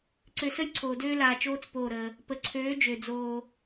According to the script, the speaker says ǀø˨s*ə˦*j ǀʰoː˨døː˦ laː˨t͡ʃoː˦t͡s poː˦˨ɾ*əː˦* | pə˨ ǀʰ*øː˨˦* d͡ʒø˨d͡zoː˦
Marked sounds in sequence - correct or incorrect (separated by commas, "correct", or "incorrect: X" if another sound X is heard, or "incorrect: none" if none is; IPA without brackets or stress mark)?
correct, correct, correct